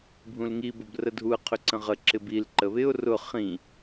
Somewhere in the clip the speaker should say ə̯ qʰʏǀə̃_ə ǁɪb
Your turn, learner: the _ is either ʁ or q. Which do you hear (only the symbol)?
ʁ